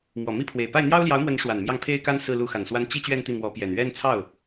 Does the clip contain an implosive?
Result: no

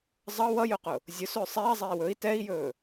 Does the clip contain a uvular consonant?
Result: yes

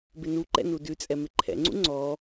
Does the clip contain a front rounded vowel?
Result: no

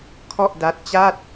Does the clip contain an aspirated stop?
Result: yes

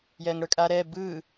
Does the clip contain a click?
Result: no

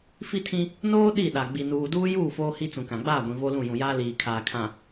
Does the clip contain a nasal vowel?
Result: yes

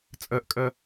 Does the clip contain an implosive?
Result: no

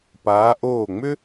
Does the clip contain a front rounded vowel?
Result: yes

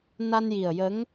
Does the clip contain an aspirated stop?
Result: no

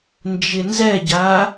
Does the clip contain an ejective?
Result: no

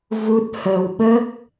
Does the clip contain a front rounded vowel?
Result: no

